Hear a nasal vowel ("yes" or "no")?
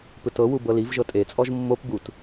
no